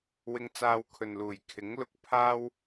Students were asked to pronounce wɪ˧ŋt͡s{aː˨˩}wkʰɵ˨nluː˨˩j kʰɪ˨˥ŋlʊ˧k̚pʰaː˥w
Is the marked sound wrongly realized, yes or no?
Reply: yes